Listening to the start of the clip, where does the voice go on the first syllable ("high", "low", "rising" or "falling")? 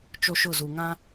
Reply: high